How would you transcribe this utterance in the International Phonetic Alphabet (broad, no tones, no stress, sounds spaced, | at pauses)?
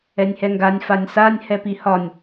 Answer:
ɛ nʲ h ɛ ŋ ɡ a nʲ f a nʲ s a nʲ h ɛ p i h ɒ nʲ